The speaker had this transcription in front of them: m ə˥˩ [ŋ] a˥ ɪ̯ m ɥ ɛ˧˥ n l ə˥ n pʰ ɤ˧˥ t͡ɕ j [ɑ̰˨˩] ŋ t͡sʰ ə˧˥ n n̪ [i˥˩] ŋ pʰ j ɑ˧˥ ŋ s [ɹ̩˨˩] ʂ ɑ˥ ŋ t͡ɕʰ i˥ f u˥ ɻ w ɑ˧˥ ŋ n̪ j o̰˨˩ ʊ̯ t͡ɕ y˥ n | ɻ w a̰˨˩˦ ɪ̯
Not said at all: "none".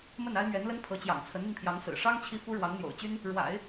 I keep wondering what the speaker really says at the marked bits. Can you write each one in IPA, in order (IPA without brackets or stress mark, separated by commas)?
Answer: n, ɑ̰˨˩, i˧, ɹ̩˨˩